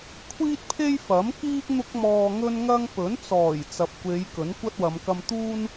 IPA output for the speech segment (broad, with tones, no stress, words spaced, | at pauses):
kʷʰiː˥t̚pʰe˥jfɐ˨˥mkiː˥k̚ n̪ʊ˥k̚mɔː˧ŋɵ˥nŋɐ˥ŋ pɵ˨˥n t͡sɔː˨˩j t͡sɐ˨p̚kʷe˨˧j kɵ˨˥nkʷɐ˥t̚wɐ˨˧m kɐ˧mt̪uː˥n